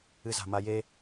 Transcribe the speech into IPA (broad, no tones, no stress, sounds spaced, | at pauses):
ɨ z a̤ m a j e